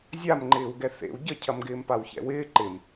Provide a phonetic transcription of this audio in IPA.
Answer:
zʲamŋ͡ǃɪːwɡɛ θḛw ɟəcʰɐm ɡɪːmpawçɛ̰wɪː ǃɪm

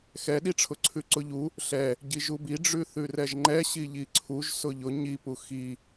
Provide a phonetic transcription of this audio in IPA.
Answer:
xɛɗiʈ͡ʂʰʊ ǀʰʉǀʊʎu | ɬɛ | ɟiʒubi ɖ͡ʐʉθʉrɛʒŋ͡ǃɛ ɕiʎiǀʰuʒ sʊʎʊ ɲipu xi

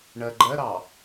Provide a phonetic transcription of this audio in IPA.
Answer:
ɳɜɡ͡ǃɜɾɑ

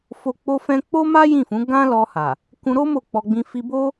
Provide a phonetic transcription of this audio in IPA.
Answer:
fo˧k͡po˦fɛ̃˦ k͡po˦ ma˦jĩ˦˨fũ˨˦ ɡã˦lɔ˧ha˨ | kũ˧ɾo˦ mo˦˨k͡pɔ˧ɡ͡bĩ˧ fi˧bo˦

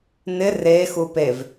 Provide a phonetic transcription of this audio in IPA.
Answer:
nɪ re xupev

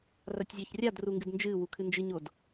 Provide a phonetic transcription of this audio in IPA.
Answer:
ratʲzʲɐːçrʲad ruŋɡɨdnd͡ʒɨː wukʰɨnd͡ʒɨ ɲod

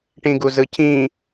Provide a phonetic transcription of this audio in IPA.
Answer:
ʈĩɡuzɯcʰĩ

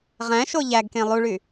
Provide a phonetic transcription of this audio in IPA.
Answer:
ʁæ̃ ʃoʎæɡkẽ lˠuɭy

